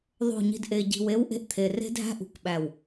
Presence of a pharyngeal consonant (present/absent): absent